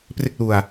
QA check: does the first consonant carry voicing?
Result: no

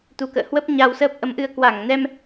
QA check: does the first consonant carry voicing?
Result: no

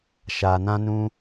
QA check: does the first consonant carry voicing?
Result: no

